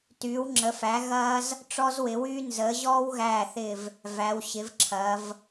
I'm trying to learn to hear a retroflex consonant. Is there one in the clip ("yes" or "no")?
yes